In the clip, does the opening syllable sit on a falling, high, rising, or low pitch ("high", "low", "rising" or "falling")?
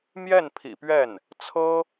falling